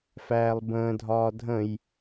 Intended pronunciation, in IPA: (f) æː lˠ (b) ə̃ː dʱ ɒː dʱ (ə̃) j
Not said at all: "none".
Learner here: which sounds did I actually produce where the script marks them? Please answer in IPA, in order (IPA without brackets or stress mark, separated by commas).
f, b, ə̃